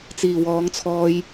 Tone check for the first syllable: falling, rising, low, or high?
low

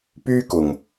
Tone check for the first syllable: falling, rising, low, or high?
high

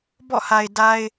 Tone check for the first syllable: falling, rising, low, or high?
falling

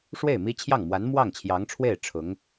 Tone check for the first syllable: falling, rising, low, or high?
falling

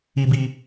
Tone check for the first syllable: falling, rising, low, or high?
low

